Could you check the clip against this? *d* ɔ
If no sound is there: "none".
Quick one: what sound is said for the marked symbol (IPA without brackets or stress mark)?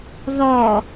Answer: ð